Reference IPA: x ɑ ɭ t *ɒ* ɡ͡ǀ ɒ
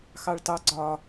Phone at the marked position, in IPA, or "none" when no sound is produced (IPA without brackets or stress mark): ɑ